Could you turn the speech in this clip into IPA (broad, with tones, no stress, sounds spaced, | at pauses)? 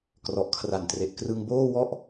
k r ɔ˨˩ ʔ kʰ r a˨˩ n t r e˨˩ ʔ k r ɯ˧ ŋ b oː˥˩ w ɔ˥˩ ʔ